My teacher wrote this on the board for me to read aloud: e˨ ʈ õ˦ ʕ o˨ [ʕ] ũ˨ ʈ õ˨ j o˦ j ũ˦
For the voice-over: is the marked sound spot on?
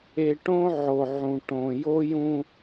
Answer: yes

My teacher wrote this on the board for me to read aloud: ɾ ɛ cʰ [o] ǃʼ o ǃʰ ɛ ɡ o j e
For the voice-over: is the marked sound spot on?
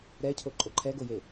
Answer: yes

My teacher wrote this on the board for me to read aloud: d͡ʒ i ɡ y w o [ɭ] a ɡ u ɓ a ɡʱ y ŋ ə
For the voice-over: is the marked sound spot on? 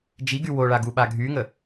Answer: yes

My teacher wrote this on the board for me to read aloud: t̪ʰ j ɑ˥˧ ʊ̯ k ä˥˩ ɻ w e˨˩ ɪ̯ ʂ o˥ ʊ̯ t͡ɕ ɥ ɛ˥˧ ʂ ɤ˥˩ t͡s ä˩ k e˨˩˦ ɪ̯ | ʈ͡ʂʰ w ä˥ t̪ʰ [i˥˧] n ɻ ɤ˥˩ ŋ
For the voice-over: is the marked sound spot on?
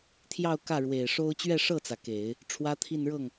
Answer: yes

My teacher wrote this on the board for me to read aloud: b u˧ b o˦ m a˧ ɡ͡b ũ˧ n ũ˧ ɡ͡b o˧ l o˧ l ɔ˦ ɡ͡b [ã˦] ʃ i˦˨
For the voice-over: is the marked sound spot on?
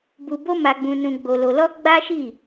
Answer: no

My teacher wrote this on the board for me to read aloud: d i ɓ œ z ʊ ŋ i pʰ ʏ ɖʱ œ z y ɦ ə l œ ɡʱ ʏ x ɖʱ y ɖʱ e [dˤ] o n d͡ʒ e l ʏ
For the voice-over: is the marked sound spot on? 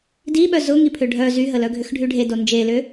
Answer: no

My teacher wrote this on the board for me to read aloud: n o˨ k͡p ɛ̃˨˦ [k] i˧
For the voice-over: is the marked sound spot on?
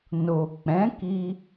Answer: yes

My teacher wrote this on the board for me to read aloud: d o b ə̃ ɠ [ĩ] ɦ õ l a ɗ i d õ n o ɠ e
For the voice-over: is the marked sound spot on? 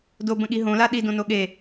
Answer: no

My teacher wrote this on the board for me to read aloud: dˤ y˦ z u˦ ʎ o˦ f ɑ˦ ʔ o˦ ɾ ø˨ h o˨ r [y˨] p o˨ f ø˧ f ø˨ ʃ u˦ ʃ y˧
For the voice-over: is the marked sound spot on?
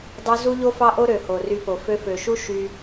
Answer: no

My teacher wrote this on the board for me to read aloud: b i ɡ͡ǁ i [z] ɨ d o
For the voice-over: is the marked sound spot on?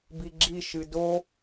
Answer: no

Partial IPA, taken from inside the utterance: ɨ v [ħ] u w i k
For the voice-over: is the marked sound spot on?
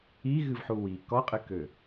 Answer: yes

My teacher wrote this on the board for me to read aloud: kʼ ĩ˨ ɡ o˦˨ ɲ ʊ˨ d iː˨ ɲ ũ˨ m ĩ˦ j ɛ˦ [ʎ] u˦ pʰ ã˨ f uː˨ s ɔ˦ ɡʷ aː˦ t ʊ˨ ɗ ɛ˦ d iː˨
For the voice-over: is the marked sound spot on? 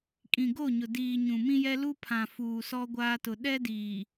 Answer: no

